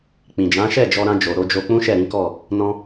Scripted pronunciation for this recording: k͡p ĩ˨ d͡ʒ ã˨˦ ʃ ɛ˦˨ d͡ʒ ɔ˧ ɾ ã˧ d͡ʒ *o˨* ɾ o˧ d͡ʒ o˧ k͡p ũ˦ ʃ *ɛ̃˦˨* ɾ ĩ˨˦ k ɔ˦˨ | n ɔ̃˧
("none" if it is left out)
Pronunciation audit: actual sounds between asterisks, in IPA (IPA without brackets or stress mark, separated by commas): o˨, ɛ˦˨